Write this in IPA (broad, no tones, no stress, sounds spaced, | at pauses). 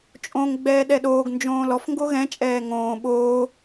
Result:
t͡ʃʼ õ ŋ ɡ͡b ɛː ɗ ɛ ɗ oː ɡ n d͡ʒ õː l ɔ f ŋ ɡ o ɣ ɛ̃ t͡ʃʼ ɛː ŋ õː ɓ oː